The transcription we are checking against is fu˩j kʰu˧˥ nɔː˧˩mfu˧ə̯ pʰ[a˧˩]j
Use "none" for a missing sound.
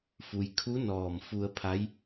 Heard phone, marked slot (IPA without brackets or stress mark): a˧˥